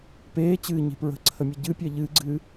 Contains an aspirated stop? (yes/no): yes